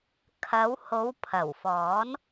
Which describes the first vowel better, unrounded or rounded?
unrounded